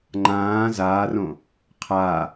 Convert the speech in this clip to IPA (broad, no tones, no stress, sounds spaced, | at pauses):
ŋ͡ǃ ãː z aː r õ | qʰ a